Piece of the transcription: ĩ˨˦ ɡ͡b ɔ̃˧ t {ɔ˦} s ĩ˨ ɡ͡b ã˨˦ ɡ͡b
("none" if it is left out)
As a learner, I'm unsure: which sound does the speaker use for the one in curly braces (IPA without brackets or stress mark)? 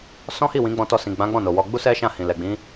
ɔ˧